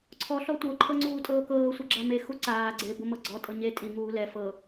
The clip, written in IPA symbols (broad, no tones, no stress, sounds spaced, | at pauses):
ǀʰ ɔ ɬ ɔ tʷ ɤ ǃʰ ɤ ŋ͡ǀ uː tʼ ɤː k ɤː sʷ e ɡ͡ǁ a m e x u ǀ aː ɡ͡ǀ e b o m ɤ ɡ͡ǀ ɔ tʼ ɤ ɲ e tʼ i ŋ uː l ɛ f ɤ